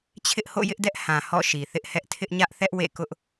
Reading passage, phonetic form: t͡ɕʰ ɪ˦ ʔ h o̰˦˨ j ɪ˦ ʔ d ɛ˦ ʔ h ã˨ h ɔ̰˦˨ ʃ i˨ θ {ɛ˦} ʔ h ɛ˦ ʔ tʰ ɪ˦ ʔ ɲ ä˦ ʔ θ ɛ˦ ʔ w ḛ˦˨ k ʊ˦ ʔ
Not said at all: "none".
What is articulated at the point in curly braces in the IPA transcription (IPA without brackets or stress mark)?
ɪ˦